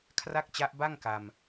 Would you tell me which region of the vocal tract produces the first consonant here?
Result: velum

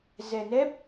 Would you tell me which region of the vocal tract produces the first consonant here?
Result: tongue tip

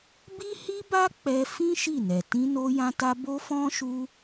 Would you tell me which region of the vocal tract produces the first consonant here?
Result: lips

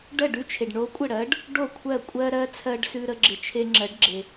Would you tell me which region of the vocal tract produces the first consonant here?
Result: retroflex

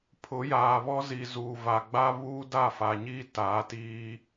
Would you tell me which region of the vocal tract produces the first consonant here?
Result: lips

